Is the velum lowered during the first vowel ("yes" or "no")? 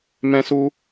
yes